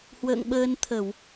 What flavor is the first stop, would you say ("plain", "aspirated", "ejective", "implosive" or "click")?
implosive